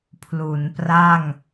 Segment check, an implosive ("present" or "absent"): absent